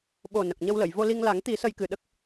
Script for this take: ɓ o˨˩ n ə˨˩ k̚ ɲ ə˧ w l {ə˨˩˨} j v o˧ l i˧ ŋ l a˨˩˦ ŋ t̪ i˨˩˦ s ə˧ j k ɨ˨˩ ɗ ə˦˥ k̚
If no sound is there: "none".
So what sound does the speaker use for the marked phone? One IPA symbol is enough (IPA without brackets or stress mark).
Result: ə˨˩˨